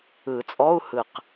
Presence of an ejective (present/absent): present